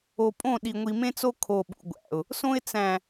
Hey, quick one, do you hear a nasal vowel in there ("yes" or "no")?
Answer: yes